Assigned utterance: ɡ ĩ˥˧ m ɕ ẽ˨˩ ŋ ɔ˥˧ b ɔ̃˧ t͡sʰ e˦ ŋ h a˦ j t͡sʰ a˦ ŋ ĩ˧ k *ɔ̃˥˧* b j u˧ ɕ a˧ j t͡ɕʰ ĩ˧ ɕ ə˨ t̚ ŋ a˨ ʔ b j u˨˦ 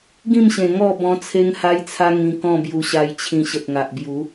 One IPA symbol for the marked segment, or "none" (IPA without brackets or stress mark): ɔ̃˥˧